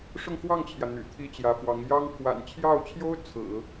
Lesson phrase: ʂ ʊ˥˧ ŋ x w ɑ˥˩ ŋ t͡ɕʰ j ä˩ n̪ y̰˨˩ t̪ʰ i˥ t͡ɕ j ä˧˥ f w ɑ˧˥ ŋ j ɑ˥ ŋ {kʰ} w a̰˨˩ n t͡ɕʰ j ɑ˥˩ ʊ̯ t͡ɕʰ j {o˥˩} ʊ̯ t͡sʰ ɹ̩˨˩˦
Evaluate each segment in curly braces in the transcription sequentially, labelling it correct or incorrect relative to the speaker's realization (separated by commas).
correct, incorrect